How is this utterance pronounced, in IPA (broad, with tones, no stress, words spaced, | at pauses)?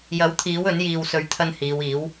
jɐ˨˥wt̪ʰiː˨˥wɵ˨˥n jiː˨wsɵ˨˥ɥt̪ʰɐ˧n hiː˨˧wiː˨˥w